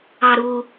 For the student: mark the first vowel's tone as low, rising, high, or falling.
low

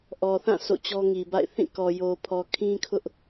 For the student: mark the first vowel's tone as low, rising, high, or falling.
low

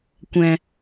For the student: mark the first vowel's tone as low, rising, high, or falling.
low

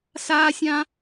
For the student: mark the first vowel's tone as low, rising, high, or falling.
high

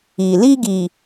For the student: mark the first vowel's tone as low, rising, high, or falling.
low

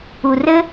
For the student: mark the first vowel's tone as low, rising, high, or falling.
low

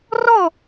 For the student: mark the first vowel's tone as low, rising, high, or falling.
falling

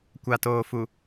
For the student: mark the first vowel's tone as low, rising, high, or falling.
low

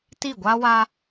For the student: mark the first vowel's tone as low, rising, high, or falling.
falling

